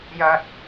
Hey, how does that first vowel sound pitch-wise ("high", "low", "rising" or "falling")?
low